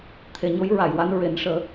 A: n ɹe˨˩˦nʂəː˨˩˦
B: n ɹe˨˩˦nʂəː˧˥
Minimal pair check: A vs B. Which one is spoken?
A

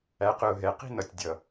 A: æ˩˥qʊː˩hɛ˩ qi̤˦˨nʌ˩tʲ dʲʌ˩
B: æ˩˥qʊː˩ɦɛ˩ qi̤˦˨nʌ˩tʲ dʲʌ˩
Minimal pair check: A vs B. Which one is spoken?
B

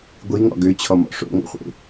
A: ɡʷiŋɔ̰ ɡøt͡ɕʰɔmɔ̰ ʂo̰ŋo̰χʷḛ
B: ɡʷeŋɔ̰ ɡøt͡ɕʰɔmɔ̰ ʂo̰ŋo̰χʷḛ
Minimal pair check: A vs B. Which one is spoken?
A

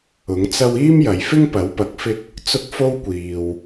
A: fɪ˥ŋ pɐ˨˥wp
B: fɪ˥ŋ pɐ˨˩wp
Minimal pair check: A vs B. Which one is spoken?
A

